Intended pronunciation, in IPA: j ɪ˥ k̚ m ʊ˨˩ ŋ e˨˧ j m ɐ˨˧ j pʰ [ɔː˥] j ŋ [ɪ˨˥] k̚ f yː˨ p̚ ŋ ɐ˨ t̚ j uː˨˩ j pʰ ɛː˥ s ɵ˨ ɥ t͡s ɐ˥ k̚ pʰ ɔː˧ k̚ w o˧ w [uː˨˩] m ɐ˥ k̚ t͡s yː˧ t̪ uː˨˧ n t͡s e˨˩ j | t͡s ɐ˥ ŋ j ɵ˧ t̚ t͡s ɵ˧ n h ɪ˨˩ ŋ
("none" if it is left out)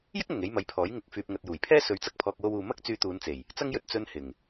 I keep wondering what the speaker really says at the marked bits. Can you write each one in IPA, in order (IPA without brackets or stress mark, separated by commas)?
ɔː˨˥, ɪ˨˥, uː˨